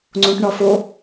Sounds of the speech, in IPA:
ŋ͡ǀ õ ʈ ɳ ɒ f o

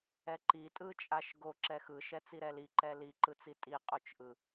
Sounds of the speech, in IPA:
ɛ ǃ i tʼ ɯ t͡ʃʼ a ʃ ɡ o ǁ ɛ x ɯ ʃ ɛ t͡s i ɾ ɛ l i ǃ ɛ l i ǃ ɯ t͡s i tʼ i qʼ o t͡ʃ ʔ ɯ

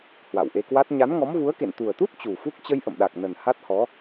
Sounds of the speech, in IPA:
h w a̰˧˨ w ʔ e˧ k w a˦˥ t̚ ɲ a˨˦ n ŋ ɔ˨˦ m v u˨˦ ə̯ k ḛ˧˨ n t̪ u˨˩ ə̯ t̪ u˦˥ t̚ t͡ɕ u˨˩ f u˦˥ k̚ t͡ɕ ə˧ j ʔ ə̰˧˨ m ɗ a˨˩ k̚ n ə˨˩ n h a˦˥ t̚ h ɔ˨˦

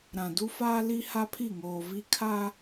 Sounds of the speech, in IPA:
ɾ ã˨ d u˦ f aː˦ l i˦ h a˦ pʰ i˦˨ ŋ oː˨ v i˦ kʰ a˦

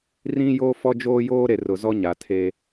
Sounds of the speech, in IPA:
r ĩ˦ j o˦ f ɔ˦ d͡ʒ oː˦ j oː˦ ɾ e˨ r ʊ˨ z ɔ˦ ɲ a˨ tʰ e˦

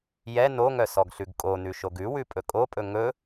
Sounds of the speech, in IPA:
j ɛ n o ŋ œ s ɔ ɡ ɬ ʉ ɡ kʼ o n ʉ ʃ o ɡ ʉ w ʉ pʼ ɵ kʼ o pʼ ɵ ŋ ɵ

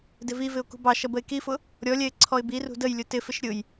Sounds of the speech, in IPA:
d ɪ v i v ɪ ʊ̯ k ṳ b ɑ ʃ ʌ b ə ɪ̯ k i f ʊ | ɾʲ ɔ lʲ ɛ ɪ̯ ǀʰ ɔ ɪ̯ b i r ṳ d ə j lʲ ʊ t ɪ f ɪ ʃ ɾʲ ʊ j

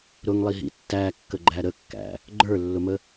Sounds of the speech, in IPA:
ɾ ʊ ŋ lˠ i ɦ ḭ tː æ kː ə ɡ͡ǃ æ ɾ ə kː æ̰ | ɡ͡ǃ ə˞ lː ʊ m ə

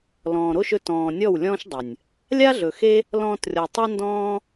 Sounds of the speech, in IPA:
l ɔ̃ː˨ ɾ o˦ ʃ ɵ˧ t ɔ̃ː˨ nʲ ɔ˦˨ w lʲ ɔ̃ː˦ ʃ dˤ ə˨ nʲ | lʲ a˦ ɮ ɵ˨ x e˦ | l ɔ̃ː˧ t rʲ ɔ˨ tˤ a˦ n d ɔ̃ː˦

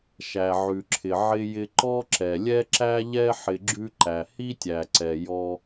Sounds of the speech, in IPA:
ʃ æ˩ ʕ ʉ˩ ǁʰ ɪ˩ ʕ ɪ˧ j ɪ˧ ǃ ɔ˥ ǁ ɛ˩ lʲ ɛ˥ ǁ æ˥ ʎ ɛ˥ ħ ɪ˧ ɡ͡ǁ ʉ˥ ǃ æ˩ h i˥ tʲ æ˩ ǀ ɛ˩ j ɔ˧

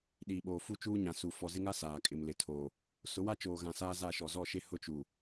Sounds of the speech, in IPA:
ɗ iː˨ ɓ oː˨ f u˦ t͡ʃ uː˦ ɲ ã˨ s u˨ f ɔ˨ z ɪ˦ ŋ a˦ s aː˨ kʼ ɪ˨ m l ɪ˨ tʰ oː˨ | s ʊ˨˦ w a˦ t͡ʃ oː˨ ɣ ã˨ s aː˦ z a˦˨ ʃ ɔ˨ z ɔ˦˨ ʃ e˦ h ʊ˦ t͡ʃ u˨

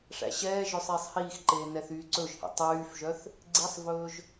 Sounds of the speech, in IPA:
ʂ æ̰ ɕ ɛː ʒ œ sˤ iː sˤ h iː x ǃ eː n ɛ θ yː ǀ ɵ ʒ h ḭ tˤ yː f ʒ œ θ | ɡ͡ǀ i sˤ v ɵː ʒ

